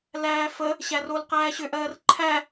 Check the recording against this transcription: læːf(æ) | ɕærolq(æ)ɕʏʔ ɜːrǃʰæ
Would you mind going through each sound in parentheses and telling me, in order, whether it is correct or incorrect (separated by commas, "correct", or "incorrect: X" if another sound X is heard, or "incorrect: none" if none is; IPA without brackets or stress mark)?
incorrect: ə, incorrect: æː